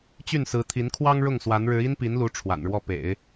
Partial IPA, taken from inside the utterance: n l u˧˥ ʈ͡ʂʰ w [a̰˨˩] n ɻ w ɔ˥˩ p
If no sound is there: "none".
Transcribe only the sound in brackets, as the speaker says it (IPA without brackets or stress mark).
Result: a̰˨˩